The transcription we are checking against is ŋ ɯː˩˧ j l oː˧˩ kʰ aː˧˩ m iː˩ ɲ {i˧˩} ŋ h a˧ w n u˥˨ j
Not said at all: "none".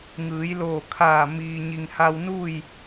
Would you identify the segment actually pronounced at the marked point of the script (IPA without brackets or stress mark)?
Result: i˩